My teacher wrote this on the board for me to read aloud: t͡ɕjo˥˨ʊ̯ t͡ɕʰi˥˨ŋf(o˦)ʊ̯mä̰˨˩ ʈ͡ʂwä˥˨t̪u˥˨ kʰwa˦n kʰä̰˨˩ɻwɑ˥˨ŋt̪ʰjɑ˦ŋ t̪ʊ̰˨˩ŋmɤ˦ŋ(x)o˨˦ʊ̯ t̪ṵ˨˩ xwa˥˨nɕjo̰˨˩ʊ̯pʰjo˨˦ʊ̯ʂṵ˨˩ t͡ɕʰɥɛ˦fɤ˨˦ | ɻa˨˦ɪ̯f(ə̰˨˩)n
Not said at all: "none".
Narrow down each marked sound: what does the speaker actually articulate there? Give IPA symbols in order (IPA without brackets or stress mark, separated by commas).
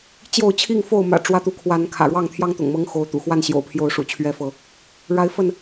o˥˨, x, ə˥˨